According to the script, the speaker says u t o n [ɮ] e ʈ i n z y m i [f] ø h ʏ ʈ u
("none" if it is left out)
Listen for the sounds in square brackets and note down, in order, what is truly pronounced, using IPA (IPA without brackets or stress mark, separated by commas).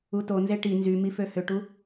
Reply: z, f